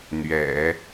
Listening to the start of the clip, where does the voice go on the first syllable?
low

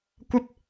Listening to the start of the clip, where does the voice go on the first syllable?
high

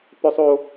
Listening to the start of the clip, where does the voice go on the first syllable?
high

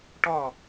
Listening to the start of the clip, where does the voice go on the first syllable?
falling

